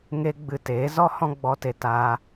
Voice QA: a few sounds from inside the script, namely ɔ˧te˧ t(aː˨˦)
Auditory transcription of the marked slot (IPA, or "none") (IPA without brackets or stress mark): aː˧